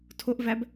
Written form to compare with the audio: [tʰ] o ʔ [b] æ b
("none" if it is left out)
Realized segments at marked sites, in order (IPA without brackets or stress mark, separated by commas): tʰ, v